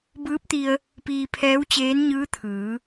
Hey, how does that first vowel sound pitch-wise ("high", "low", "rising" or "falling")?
rising